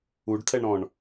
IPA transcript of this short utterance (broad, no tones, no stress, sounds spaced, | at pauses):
u ɖ tʰ ɛ ɳ ɾ ɔ̃ ɳ